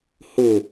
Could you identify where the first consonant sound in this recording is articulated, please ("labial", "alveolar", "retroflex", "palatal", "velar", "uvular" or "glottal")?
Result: glottal